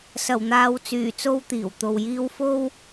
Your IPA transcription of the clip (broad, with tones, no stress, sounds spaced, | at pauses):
s ɐ˨˩ w n̪ aː˨ w t͡s yː˨˩ t͡s o˧ w t̪ iː˨˩ w t̪ o˨ w j iː˥ w f o˥ w